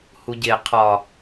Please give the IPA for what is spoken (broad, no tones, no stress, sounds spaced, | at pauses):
h u ɟ e qʰ ɒ